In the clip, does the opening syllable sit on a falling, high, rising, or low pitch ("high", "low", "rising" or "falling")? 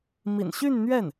low